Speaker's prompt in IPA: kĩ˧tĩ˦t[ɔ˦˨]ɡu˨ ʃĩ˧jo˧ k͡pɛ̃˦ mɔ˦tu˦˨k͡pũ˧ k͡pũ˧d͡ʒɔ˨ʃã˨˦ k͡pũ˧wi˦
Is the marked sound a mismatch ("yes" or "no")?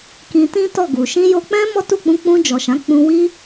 no